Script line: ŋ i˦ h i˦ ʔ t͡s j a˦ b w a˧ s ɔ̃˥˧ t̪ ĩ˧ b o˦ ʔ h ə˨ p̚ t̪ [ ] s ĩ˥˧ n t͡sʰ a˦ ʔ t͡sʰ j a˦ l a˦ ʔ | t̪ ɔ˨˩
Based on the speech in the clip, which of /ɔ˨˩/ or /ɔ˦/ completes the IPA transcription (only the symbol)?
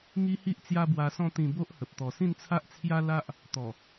ɔ˨˩